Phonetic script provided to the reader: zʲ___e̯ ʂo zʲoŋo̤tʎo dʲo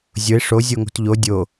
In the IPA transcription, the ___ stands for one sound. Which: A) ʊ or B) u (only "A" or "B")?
A